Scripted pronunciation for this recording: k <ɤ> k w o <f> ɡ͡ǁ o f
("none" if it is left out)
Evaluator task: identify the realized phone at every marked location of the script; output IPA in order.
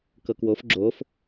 ɤ, f

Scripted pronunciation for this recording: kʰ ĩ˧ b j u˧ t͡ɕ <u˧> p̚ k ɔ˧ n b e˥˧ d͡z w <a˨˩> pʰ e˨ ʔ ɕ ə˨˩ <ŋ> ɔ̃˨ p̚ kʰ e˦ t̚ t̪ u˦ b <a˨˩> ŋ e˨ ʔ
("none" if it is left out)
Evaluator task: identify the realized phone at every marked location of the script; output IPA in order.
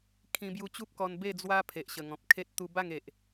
u˦, a˦, ŋ, a˥˧

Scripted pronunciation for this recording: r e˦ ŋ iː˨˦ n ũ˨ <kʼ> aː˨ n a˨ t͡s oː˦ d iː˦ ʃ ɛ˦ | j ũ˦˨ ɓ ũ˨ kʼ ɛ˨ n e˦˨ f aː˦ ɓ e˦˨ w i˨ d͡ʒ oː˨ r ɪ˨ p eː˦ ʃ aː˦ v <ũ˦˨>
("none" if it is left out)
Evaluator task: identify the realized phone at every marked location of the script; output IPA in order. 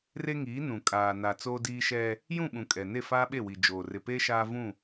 kʼ, ũ˦˨

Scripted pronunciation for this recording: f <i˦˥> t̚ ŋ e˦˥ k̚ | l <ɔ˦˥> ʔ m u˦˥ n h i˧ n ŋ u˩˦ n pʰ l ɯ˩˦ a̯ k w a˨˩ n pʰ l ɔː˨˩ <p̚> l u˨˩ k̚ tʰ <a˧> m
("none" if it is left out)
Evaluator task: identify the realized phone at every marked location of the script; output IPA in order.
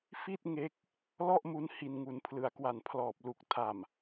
i˥˩, ɔ˥˩, p̚, a˨˩

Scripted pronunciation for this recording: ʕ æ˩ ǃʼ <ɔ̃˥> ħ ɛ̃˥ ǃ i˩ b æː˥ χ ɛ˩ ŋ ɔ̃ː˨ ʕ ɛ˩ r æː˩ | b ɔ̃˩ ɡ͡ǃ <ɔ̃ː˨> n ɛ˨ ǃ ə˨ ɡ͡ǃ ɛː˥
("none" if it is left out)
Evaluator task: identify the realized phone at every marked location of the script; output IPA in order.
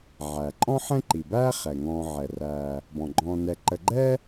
ɔ̃˥, ɔ̃ː˨

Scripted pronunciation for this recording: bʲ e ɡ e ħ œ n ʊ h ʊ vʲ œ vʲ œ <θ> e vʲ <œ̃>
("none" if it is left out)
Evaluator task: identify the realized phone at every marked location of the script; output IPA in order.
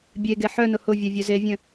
z, œ̃

